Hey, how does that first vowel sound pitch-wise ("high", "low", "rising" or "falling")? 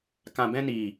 low